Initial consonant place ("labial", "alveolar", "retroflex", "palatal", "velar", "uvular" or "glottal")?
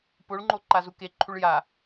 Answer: labial